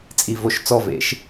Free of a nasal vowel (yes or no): yes